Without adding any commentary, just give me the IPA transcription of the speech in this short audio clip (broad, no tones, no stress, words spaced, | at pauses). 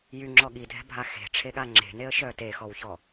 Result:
jyŋ͡ǁɔ ɠidʱɛ̤bʱa xe̤ʈ͡ʂʰeɠa ŋ͡ǁe̤neə̯ʃœ texɔwçɔ